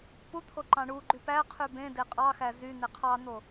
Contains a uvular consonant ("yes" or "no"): yes